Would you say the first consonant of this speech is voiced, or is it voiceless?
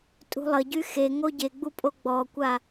voiceless